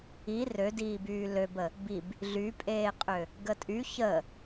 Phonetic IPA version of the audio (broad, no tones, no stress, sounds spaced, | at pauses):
i r ø d iː b yː l ø b ə | b i b | ɮ y pʼ eː qʼ ø | ɡ ə tʼ y ç ə